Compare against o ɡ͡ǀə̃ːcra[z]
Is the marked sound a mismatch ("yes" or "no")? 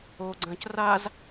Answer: no